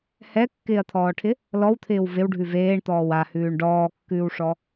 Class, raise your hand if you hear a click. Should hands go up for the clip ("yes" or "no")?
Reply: no